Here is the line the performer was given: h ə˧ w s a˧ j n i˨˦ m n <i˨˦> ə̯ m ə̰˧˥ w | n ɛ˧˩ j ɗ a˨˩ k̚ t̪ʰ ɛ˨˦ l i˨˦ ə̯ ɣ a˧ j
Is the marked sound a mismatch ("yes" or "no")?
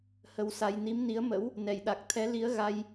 no